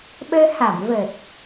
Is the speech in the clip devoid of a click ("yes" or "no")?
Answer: yes